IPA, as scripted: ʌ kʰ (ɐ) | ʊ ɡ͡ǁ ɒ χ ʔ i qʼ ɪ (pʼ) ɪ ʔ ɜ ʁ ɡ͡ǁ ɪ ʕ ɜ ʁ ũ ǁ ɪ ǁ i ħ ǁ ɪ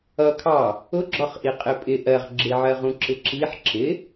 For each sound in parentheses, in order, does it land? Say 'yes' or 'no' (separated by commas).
no, yes